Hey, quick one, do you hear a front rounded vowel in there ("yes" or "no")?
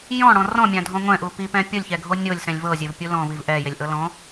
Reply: no